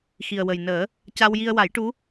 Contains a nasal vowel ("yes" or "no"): no